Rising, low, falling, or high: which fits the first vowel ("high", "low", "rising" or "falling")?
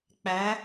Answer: rising